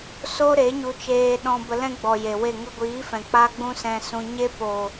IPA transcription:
so˦ɾe˨˦ ɲu˧t͡ʃeː˧ɗɔ̃˧ bə˧lɛ̃˦ɡ͡bɔ˨ je˨we˦˨ ŋə˧ɡʷiː˨˦fɛ̃˨ k͡pa˦ɡ͡bũ˦sɛ̃˧sũ˧ ɲe˦ po˨

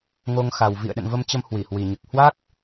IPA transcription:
ŋo˧ŋxa˨˩w vḭ˧˨ə̯ɗə̰˧˨nvə˧mt͡ɕə˧m hwi˧˩hwi˨˩ɲɨ˨˩k̚ hwa˦˥k̚

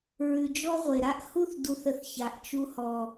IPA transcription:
ɹʉ˨d͡ʒɔ˦ʁʷe˨ɾa˦ʔ hu˦θdu˨θə˨θ ça˨ʔt͡ʃu˦hɔ˦

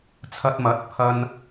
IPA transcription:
t͡sʰɐ˧t̚mɐ˨˥t̚ pʰɐ˧n

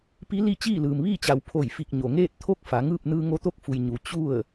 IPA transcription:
pi˧˥li˥˨ t͡ɕiː˥˨lɯː˩mʋiː˥˨t͡ɕa˩˧w pʰo˧˩jfi˧˩k̚ ɲo˩ŋeː˥˨t̚ t̪ʰo˥˨k̚ fa˩˧ŋɯː˥˨p̚ nɯː˧ŋo˧t̪o˥˨k̚fu˩j ɲu˩ t͡ɕu˥˨ə̯

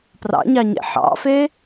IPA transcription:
prɑ̰ɲɑɲḛ ħɑ̰fe

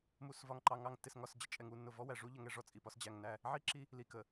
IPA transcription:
mu˨svɒ˨ŋǃɑ˨ŋɑ˨ŋ tːɪ˨sŋɒ˨sd͡ʑə˨ t͡ʃʼɛ˨ŋu˦˨nːʊ˨ vɔ˦wæ˨ ʐu˦ ʎə˨ŋɛ˦ ʐɔ˨t͡sʼi˨pɒ˦s d͡ʑæ˨ŋnæ˦˨ | ʕi˦ǁi˦ | li˨kə˨

